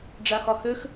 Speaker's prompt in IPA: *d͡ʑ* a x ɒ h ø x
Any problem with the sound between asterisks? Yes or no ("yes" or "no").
yes